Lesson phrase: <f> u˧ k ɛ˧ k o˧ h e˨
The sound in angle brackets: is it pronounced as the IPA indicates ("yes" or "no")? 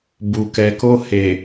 no